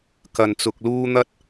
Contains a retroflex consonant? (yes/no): no